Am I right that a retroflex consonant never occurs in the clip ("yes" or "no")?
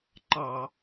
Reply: yes